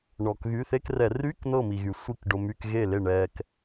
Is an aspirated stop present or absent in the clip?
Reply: absent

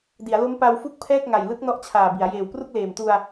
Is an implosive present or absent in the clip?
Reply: absent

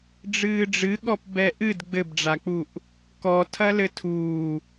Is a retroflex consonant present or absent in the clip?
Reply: present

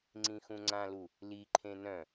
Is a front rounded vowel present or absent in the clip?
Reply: present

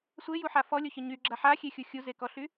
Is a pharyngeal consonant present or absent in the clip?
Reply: present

